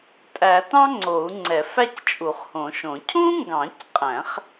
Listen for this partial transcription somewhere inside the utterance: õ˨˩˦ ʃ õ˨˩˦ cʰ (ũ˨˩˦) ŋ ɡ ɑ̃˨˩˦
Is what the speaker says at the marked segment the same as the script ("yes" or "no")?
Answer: no